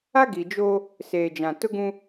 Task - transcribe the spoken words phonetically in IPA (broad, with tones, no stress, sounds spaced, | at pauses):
a˦ ɡ i˨ d͡ʒ o˦ | s eː˨ d͡ʒ ã˨ t ʊ˦ ɡ ũ˦